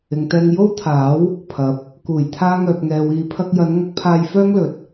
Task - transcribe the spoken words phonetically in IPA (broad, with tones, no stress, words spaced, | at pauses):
ɪ˨ŋt̪ɛː˧ŋ jo˥wt̪ʰaː˨˥w | pʰɐ˨˥p̚ | kuː˨˩j t̪ʰaː˥ŋœː˧p̚ŋɛː˧wiː˧ pʰɐ˧k̚jɐ˨˧nŋɐ˧k̚pʰaː˧j fœː˥ŋlɵ˨t̚